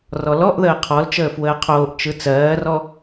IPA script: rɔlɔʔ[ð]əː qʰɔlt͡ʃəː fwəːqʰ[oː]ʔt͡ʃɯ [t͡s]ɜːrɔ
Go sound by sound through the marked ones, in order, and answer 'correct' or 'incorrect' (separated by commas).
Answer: correct, correct, correct